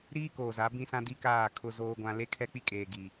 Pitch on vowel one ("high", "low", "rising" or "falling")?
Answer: high